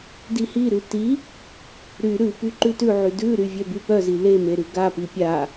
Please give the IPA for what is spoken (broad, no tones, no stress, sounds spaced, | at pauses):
d i h i ɾ ʉ t i | ɾ y ɾ ʉ p y ǃ ʉ t ʉ ʕ y d ʉ ɾ y vʲ œ b y p œ z i l e m e ɾ ʉ ɡ a p i pʲ a